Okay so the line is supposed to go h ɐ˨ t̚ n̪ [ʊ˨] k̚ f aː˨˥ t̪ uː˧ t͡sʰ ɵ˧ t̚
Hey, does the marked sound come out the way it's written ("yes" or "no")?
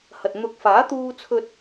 no